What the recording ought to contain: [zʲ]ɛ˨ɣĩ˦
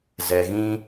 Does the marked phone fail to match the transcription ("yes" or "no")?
yes